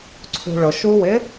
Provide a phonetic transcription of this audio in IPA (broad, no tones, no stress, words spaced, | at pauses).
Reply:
ǀʰṳɭʊ ʃuwɪ